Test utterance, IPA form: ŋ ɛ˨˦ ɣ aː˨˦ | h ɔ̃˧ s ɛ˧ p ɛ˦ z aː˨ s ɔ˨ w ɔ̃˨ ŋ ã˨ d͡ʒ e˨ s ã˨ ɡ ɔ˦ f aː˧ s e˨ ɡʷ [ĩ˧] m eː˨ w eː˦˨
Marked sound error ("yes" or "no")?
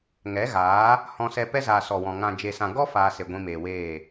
no